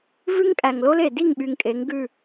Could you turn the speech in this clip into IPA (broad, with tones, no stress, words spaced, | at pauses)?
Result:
vʉ˦ŋkʼæ˨ŋlo˦le˨ di˦˨ŋɓy˨ŋ kʼe˨˦ŋɡʉ˦˨